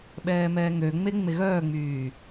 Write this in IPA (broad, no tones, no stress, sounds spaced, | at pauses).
ɓ ɛː m ɛː ŋ ø ŋ͡m e ŋ͡m e ɣ œː ŋ͡m yː